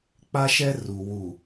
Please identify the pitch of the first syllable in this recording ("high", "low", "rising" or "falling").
high